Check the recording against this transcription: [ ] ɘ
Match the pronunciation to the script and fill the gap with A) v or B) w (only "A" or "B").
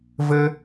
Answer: A